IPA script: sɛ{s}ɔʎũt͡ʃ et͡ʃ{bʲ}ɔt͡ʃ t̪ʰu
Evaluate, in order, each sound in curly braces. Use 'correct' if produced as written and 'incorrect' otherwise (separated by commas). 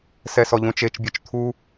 correct, correct